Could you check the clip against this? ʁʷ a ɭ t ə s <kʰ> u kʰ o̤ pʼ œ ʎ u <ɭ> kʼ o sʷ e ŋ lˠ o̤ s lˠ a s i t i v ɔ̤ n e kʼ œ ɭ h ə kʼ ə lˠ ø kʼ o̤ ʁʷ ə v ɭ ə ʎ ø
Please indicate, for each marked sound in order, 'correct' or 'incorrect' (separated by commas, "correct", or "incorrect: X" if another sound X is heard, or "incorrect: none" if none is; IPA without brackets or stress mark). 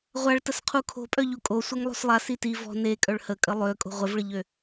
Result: incorrect: qʰ, incorrect: none